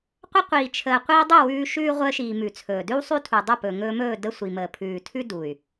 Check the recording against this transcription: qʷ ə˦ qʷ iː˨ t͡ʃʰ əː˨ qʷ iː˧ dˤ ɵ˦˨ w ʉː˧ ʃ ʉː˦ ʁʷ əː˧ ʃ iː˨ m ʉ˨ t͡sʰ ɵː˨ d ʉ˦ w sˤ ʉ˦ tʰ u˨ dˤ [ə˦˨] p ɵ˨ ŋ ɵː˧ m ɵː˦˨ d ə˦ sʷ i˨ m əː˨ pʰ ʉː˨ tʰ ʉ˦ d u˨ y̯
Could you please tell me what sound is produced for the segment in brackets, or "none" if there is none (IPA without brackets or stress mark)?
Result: ə˦˨